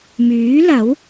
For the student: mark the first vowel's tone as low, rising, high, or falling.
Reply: rising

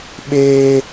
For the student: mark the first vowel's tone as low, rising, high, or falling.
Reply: high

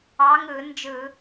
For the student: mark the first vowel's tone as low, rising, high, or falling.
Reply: rising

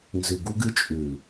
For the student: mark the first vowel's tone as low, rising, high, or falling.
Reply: low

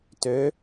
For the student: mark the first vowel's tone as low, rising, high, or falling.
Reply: rising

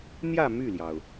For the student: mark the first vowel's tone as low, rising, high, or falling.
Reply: falling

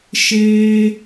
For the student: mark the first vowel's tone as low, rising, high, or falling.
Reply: high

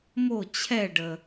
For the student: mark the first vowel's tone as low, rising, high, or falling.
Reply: falling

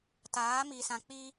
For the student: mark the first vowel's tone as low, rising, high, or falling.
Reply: rising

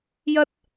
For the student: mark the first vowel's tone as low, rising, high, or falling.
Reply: high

